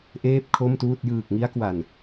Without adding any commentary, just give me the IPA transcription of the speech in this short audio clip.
ʔ eː˥˩ p̚ kʰ o˥˩ m t uː˥˩ t̚ j ɯː˨˩ k̚ ŋ i˦˥ a̯ k w a˨˩ n

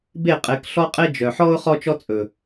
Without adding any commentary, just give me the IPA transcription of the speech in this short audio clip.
b e˦˨ qʼ e˨˦ k ɬ ɔ˦ qʼ e˦ d͡ʒ œ˨ ħ ɔ˦ ʊ̯ χ ɔ˦ t͡ʃ ɔ˦ t͡sʼ ɵ˨

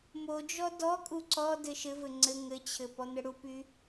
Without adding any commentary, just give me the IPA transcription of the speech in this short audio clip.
m o d͡ʒ ɔ d ɔ kʼ u ǀ ɔ d ɘ ʃ ɘ v ɘ ŋ͡ǀ ɘ ŋ ɘ t͡ɕʰ ɘ p ɔ n̪ ɘ ɽ u p y

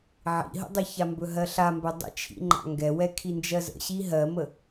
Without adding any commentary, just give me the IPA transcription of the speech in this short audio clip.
ʕ ḭ ɦ ə̰ dˤ ə ç a m b ɵ ɦ ɜ ɬ a m b ɵ dˤ ə̰ t͡ʃʰ ḭ ŋ͡ǃ a̰ ŋ ɡ ɛ w ɛ kʰ i n d͡ʒ ɜ z ə̰ ɕ i ɦ ɜ m ə

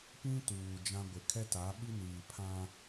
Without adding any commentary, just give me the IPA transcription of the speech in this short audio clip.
p ĩ˦ t uː˨ d͡ʒ ã˦ ɡʷ ɪ˨ kʰ ɛ˦ t a˨˦ ɓ i˦ n iː˨ pʰ ã˦

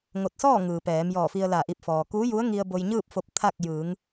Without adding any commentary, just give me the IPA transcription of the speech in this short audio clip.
ŋ o˧˩ t̚ s ɔː˥˨ ŋ ɯː˩ p ɛː˩˧ m j ɔː˧˩ f i˧ ə̯ l a˧˩ ʔ i˧˩ p̚ f ɔː˩ k uː˧˥ j u˧˥ ə̯ ŋ i˧ ə̯ b o˧ j ɲ ɯː˥˨ p̚ f o˧ p̚ t̪ʰ a˥˨ k̚ j ɯː˩˧ ŋ

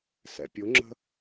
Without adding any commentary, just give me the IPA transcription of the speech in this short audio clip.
s ɛ̰ pʲ ʊ ŋ͡ǁ ə̤

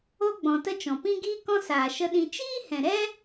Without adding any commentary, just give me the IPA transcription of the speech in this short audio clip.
o˦ ɡ͡b ɔ̃˨ t ə˦ t͡ʃ ɔ̃˨ p ĩ˦ ɡ iː˦ k ɔ̃˦ s aː˨ ʃ ə˧ ɗ ĩ˧ t͡ʃ iː˦ h ɛ̃˨ ɾ ɛ˦

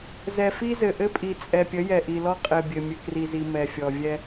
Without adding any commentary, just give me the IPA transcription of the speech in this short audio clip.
z ɛ˨ f i˦ z ɘ˨ ʔ ɘ˦ pʼ i˨ t͡sʼ ɛ˨ pʲ ə˨˦ j ɛ˨ ʔ i˨ l ɔ˦ qʼ ɘ˨ bʲ ɘ˨ mʲ ɘ˨ k r i˨ z i˨ m ɛ˨ fʲ ɔ˨ vʲ ɛ˦

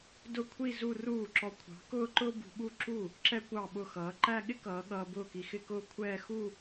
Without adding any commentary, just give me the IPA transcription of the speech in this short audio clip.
d ʊ˥˧ kʷʰ i˥˧ z u˥˧ r uː˥˩ ǁ ɔ˧ kʷʰ ɑ̤˨˥ k ʊː˥˧ ǃ ʊː˥ b ṳ˧ ɓ u˥˧ ǁ u˥˩ | ǁ ɛ˥ kʷ ɑ˥˩ ɓ ʊ˥˩ x ʌː˨˥ ǃ æ˥˧ ɠ ɪ˥ k ʌː˨˥ ɠ ʌː˧ b ʊː˥˩ k i˧ x ɪ˥˧ k ʊː˥˧ kʷʰ ɛː˥˧ x u˥˧

